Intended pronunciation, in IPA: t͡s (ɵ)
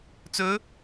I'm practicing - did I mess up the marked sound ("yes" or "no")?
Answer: no